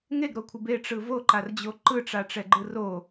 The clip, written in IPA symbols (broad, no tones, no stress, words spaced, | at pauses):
ŋeɡɾokʷʰɯb eʈ͡ʂɯ voǃard͡ʑo ǃɯʈ͡ʂaʈ͡ʂɛɡ͡ǃɯ ro